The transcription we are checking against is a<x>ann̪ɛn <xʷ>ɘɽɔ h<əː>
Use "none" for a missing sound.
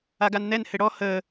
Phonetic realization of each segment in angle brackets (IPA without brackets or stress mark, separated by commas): ɡ, h, əː